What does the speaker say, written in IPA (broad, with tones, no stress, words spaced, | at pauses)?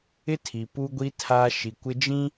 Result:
ɪ˦tʰi˨ pu˦ɡʷi˦ tʰa˦ ʃi˨kʷɪ˦d͡ʒĩ˦